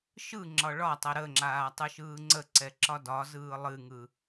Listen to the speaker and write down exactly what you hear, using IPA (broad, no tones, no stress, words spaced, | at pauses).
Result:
ʃɯ ŋ͡ǁɒɭɒtˤɛ ɾəŋ͡ǁaː tˤɯʃɯːŋ͡ǀəǀɛ ǁɒdɒzɯː lˠɨŋɯ